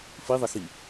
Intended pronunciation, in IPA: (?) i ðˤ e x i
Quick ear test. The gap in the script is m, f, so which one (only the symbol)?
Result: f